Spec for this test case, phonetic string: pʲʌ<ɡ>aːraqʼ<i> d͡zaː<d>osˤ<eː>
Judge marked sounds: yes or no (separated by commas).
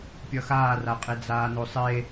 no, no, no, no